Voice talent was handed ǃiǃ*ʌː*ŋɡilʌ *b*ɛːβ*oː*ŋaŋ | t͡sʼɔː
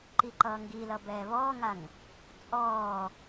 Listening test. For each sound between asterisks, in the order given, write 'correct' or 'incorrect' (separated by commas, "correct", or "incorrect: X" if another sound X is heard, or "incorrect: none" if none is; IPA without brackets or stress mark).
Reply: correct, correct, incorrect: ɔː